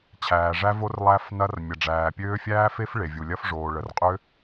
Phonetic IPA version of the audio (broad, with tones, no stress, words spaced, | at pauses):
t͡ɕʰæː˩ʐæ˦˥vo˦˥r lˠæ˦˥fnɐ˦˥r mʲɐ˩ɖ͡ʐæː˩pʲøː˦˥ fʲæː˦˥fe˦˥f ɭe˩vʲu˩ lʲɐ˦˥fʐoː˩ ɭə˩rqʼø˦˥